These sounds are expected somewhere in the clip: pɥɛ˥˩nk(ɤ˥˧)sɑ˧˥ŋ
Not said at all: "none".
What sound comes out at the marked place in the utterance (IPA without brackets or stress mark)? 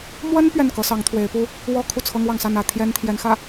ɤ˧˥